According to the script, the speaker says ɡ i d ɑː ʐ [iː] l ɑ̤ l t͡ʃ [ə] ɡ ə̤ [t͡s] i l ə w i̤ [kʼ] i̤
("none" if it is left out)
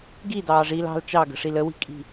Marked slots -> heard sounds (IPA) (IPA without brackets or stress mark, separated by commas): iː, ɑ, ʂ, kʼ